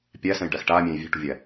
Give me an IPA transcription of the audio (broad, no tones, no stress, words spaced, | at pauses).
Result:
pʲæsɛ̃jɖæx ʈaːmʲɛ̃ːj vʲɛ̤ʈṳvʲæ